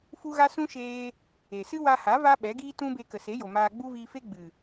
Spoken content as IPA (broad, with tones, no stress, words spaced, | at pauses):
fu˦ɣa˦ sũ˦ʃeː˧ | e˨sɨ˦wa˧ha˨˦ va˦ ɓɛ˨˦ɡiː˦tũ˦be˧ kə˨se˨˦jo˨ maː˧ ɡ͡bu˦viː˧fe˦ ɡ͡bɨ˨